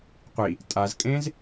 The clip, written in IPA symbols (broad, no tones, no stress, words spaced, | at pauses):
qʷi | tʼazkʼẽːz